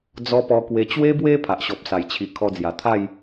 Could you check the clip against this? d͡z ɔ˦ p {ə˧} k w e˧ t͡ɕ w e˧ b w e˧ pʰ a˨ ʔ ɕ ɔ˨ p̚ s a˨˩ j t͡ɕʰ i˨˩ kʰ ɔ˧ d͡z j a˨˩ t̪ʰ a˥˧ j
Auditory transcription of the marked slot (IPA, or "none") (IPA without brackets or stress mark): ɔ˧